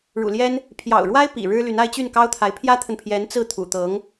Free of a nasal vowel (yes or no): yes